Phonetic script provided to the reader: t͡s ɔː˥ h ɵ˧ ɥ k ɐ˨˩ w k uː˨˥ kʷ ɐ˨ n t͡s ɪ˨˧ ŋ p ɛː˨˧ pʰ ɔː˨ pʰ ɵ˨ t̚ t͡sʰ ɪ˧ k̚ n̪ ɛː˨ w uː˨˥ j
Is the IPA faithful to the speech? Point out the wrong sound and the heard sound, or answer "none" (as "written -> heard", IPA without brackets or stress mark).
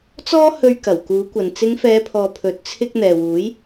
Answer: p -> f